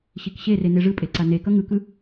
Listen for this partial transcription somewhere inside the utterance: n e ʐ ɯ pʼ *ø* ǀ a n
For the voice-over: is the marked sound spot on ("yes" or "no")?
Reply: no